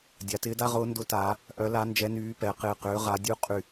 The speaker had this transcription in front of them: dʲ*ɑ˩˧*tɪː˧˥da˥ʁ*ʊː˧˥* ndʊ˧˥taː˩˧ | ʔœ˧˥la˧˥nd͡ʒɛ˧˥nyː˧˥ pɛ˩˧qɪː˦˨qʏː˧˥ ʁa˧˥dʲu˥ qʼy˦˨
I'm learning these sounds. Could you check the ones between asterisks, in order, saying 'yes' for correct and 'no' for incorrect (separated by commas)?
no, yes